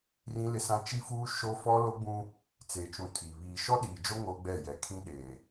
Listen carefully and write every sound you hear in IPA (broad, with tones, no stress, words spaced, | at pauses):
rĩ˦lɪ˦sã˦ t͡ʃi˦fuː˦ ʃo˦ fɔ˦ lo˦ɡ͡bũ˦ | t͡seː˨t͡ʃũ˨ tʰi˨ βiː˨ ʃɔ˦ɗiː˨d͡ʒo˦ ŋoː˦ɡ͡bɛ˦˨jɛ˨ kʰĩ˦ɗeː˨